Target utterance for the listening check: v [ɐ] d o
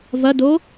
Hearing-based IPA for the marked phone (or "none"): ɐ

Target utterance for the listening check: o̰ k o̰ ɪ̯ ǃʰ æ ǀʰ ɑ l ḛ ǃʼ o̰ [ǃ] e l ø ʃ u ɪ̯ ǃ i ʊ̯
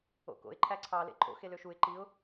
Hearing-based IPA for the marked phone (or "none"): x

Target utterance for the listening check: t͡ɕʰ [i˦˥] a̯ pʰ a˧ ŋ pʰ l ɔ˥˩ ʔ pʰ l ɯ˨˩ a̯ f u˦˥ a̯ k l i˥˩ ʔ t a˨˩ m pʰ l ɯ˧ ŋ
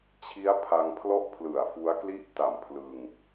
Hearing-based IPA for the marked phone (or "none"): i˦˥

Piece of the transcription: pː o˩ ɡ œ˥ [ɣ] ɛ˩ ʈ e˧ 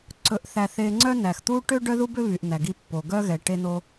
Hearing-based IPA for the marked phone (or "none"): ɣ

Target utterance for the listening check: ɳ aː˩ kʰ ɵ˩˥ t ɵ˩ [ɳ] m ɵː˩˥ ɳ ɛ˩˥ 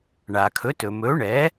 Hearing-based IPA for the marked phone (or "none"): none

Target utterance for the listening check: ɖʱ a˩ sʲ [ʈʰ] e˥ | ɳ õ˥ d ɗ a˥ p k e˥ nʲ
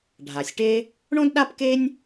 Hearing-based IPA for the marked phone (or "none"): ʈ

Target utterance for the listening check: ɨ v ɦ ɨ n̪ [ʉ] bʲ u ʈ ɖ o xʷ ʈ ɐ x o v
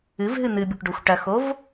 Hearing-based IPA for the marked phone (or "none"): ɨ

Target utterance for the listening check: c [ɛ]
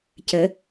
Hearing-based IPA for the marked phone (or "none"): ə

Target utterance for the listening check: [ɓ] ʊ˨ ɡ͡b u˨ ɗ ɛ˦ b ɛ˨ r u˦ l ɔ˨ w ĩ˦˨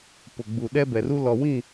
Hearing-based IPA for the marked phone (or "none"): p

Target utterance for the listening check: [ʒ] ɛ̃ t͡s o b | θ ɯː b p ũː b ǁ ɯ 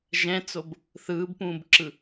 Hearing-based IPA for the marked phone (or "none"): ʒ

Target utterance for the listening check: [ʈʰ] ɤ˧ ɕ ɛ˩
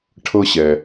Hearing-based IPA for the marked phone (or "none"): ʈʰ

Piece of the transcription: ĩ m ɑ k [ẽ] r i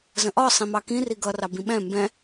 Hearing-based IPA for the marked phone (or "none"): ĩ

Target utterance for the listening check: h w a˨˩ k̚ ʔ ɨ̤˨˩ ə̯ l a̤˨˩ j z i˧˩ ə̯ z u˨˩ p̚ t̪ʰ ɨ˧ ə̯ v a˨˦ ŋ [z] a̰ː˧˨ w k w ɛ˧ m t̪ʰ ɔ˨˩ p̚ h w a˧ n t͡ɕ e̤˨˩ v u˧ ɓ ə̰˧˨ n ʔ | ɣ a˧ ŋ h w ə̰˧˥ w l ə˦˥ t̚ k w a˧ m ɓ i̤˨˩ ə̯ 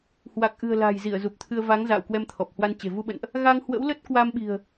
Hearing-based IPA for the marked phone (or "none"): z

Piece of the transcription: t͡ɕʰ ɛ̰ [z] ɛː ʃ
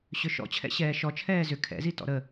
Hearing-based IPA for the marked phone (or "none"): ɕ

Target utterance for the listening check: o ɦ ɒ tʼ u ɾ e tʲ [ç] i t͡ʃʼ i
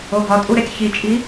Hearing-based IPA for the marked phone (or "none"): ç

